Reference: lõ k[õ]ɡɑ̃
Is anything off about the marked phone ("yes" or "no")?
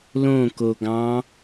yes